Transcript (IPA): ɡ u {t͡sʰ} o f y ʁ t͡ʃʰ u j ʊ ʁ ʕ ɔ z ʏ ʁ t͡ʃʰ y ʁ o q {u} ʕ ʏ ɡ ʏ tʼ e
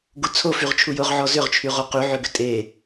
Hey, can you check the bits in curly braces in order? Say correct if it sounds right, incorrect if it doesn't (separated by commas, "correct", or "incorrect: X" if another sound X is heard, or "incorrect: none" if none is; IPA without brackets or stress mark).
correct, incorrect: y